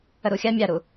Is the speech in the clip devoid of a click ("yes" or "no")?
yes